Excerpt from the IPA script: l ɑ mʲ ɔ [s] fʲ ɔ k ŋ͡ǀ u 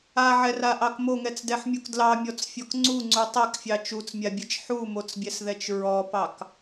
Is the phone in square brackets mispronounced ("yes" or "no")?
yes